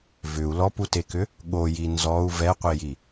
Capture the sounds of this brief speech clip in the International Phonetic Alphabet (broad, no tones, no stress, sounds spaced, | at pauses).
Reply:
v ʏ u̯ l ɔ p u t e k ʏ | ɠ o j i n z ɔ u̯ v ɛ qʷ i j i